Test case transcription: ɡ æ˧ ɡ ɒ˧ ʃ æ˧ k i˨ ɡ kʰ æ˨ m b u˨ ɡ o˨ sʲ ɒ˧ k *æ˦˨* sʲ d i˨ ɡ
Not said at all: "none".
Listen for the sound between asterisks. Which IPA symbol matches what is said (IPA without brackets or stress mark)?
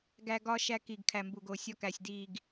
æ˨